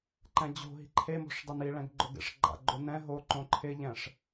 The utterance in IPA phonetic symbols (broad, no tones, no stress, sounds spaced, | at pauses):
ǃ ɛ̃ d͡ʑ o̤ ɦ i̤ ǃʰ e m o̤ ʂ dˤ ɪ n i ɭ ɛ̃ ɡ ɡ͡ǃ ʊ ɡ ḛ ʂ ɡ͡ǃ a̰ ɡ͡ǃ o n ɛ̃ ɦ o ǃ õ ǃʰ ɪ ʎ ɛ̃ ʂ